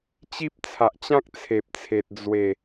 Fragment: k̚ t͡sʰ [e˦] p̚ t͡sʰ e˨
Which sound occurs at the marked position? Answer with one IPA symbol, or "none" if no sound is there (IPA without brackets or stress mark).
e˨